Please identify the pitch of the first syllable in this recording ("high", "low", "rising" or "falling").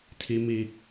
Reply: high